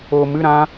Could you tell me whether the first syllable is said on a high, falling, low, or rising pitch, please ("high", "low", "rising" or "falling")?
low